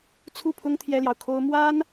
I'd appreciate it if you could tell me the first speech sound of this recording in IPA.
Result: t͡sʰ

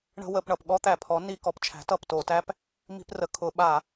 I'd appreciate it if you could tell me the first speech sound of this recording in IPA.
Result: ɳ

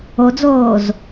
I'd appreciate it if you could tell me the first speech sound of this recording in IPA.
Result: o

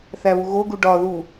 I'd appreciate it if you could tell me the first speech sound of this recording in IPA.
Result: θ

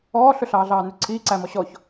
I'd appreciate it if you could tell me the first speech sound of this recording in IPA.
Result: ɔː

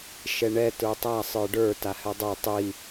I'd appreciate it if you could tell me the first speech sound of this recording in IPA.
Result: ʃ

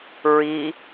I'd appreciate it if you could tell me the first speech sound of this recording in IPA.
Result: ɹ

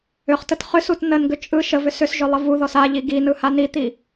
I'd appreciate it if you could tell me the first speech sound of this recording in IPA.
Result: ʏ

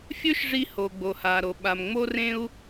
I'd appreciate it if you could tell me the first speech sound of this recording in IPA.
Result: fʲ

